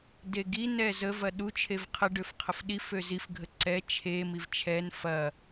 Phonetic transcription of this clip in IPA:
deɡi nɛzəv ɐɗu t͡ʃʰevqʰə ɖøfqʰəfɗi føzif ɡʱəǀɛ t͡ʃʰe mivt͡ʃʰɛn fɐ

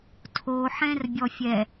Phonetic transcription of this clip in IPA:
tʰoħɛ̃r bʲɔfʲɛ

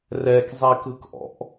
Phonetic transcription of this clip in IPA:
rɛkzˤikɯkʔɔ̰ʔ

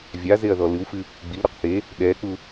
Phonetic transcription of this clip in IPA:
vʲazeɐ̯ðɔ lɨwfɨ | ɡ͡bilɾuq θe | ɗɛk͡pu

